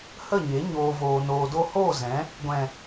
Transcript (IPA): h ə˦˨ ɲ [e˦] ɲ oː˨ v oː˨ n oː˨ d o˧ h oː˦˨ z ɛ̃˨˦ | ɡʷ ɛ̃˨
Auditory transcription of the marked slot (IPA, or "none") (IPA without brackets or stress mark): e˨˦